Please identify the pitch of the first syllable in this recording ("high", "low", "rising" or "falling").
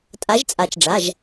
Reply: rising